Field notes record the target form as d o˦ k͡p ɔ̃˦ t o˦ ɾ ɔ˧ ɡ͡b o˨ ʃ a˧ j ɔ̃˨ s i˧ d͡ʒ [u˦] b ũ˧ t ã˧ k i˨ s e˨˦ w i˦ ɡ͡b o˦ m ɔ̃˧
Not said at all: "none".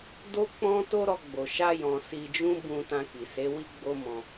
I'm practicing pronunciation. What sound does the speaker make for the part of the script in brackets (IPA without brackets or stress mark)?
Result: ũ˦